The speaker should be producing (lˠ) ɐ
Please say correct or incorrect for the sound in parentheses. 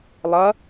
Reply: correct